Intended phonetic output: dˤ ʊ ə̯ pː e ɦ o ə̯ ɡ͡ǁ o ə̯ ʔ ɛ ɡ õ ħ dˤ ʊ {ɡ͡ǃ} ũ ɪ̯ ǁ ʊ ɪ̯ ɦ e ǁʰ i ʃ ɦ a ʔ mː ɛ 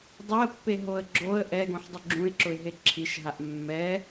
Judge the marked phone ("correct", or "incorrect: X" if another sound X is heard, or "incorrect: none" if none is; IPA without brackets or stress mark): incorrect: ɡ͡ǁ